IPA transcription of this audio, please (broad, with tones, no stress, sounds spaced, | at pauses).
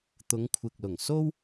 t̪ ʊ˨˧ ŋ kʷʰ ɪ˨ k̚ l ʊ˨˩ ŋ s o˥ w